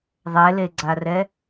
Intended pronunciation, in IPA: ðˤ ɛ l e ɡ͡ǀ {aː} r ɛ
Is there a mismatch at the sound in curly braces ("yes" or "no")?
yes